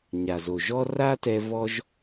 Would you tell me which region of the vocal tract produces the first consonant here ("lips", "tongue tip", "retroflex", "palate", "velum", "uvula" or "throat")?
palate